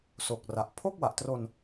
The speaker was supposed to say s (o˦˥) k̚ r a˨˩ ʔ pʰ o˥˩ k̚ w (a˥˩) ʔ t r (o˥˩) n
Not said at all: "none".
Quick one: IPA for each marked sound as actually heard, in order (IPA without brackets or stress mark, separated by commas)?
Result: o˨˩, a˨˩, o˧